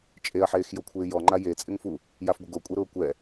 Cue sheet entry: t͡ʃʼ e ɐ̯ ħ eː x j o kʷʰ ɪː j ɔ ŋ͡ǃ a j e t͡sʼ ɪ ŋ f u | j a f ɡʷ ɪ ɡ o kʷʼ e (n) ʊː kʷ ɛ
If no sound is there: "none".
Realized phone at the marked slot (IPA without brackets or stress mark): ɾ